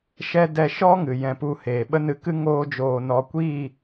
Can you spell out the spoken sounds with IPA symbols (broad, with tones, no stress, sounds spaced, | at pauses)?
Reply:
ʃ ɛ˦ d ɛ˧ ʃ ɔ˦ ŋ ɨ˨ j ɛ̃˧ p u˦˨ h eː˨ ɓ ə˦ n ɨ˧ k ɨ˦ ŋ oː˦ d͡ʒ oː˧ n ɔ˧ kʷ iː˦˨